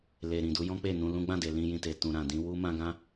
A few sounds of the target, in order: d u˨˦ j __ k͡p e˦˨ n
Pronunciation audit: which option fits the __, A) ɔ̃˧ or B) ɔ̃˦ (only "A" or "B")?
B